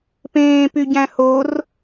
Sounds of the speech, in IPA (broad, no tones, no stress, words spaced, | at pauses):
pẽːpyɟæ̃ hor